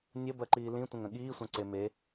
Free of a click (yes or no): no